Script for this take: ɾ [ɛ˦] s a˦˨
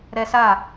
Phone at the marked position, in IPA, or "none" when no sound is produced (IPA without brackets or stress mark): ɛ˦